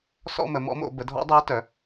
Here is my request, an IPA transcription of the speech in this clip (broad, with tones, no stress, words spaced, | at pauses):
sɔ̰˥˧mə˩˧mɔ̰˧˥mo̰˩˧ bə˩˧dʱɔ̰˧˥dˤəː˧˥ tœ˩˧